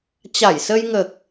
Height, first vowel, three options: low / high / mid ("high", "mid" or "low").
low